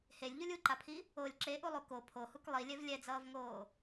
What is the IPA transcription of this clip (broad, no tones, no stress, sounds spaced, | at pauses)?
h e lʲ ʎ u lʲ u ǃ a pʰ i | o lʲ ǁ e ʔ u lˠ u k o pʰ o h u k lˠ i lʲ ɛ v lʲ ɛ d͡z ʌː v ŋ oː